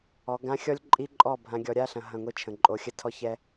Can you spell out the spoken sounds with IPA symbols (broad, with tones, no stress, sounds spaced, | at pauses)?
ɔ˨˦ ɡ ã˦ xʲ ɔ˦ lʲ ǃʼ i˦ ǃʼ ɔ˦˨ bʱ ã˨ ɡʲ ɔ˨ ɾʲ a˦ ɬ ɐ̃˨ ɦ ɐ̃˦˨ ŋʷ i˦ t͡ʃʰ ə̃˨ ǃʼ o˨ xʲ ə˦ tʰ ɔ˦ ç ɛ˦